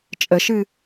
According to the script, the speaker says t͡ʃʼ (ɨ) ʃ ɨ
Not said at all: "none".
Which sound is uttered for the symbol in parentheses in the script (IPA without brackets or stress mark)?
ə